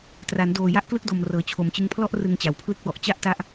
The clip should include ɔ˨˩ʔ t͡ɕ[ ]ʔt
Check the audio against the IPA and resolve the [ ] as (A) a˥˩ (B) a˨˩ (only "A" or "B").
A